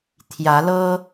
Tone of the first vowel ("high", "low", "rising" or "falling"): rising